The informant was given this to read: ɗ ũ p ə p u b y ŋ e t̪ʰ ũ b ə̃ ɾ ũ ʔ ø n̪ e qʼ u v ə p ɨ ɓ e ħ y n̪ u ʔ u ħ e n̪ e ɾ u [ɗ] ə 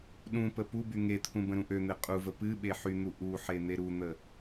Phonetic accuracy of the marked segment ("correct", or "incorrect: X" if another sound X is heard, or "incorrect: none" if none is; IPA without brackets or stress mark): incorrect: n̪